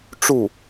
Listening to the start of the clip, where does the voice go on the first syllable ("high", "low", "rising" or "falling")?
falling